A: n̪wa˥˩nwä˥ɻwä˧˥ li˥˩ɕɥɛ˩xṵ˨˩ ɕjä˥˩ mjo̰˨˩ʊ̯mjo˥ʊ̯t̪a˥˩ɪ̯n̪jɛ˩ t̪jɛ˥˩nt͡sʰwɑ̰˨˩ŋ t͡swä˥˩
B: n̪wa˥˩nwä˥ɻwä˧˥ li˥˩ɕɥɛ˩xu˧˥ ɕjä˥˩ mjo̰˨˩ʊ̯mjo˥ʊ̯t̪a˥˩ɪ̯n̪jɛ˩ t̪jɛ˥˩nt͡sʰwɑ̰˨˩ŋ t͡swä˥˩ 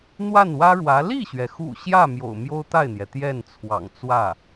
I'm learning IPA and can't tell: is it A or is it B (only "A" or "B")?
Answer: A